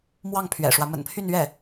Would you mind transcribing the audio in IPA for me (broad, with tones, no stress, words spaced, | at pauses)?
mwɑ˥˩ŋpʰɥɛ̰˨˩ʂwä˦ mə̰˨˩npʰy˥˧nɥɛ˥˩